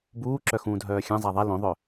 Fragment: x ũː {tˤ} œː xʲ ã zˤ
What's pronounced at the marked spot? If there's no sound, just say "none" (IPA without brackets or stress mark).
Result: dʱ